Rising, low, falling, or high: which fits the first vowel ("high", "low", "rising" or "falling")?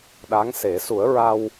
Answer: rising